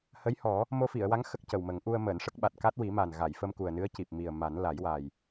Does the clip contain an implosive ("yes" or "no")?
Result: yes